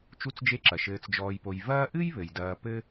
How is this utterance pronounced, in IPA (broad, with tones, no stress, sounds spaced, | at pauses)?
t͡ʃ u˦ t͡s d͡ʒ e˦ ǁ ɐ˩ ʃ ɘː˨ t͡s d͡ʒ ɔː˨ j p o˨ j v ɐː˦ ʔ ɨ˥ j β ɘ˩ j d ɐː˨ p ɘ˥